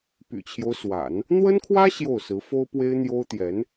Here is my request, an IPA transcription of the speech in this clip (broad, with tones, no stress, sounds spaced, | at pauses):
p y̰˨˩ t͡ɕʰ j o˦ ʊ̯ s w a̰˨˩˦ n | n̪ w ə˥ n kʰ w ä˥ ɕ j o˥˩ ʊ̯ s ɹ̩˧˥ f o˥ ʊ̯ p w e˥ ɪ̯ n̪ j o˥ ʊ̯ t̪ j ɛ˧˥ n